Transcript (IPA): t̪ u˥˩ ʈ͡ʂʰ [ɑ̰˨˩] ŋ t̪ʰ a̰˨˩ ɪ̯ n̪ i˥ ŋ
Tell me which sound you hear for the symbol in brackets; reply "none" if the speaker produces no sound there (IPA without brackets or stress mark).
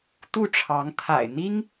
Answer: ɑ˧˥